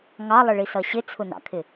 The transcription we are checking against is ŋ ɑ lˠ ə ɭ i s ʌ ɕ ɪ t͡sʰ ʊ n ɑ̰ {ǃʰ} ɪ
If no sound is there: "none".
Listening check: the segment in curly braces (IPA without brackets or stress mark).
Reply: kʰ